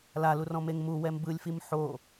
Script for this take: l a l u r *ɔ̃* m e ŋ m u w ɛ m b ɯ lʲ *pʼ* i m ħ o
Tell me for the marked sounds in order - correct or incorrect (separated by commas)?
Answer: correct, incorrect